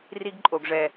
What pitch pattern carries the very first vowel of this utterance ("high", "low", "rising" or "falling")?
high